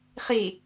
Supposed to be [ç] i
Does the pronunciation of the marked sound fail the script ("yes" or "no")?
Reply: yes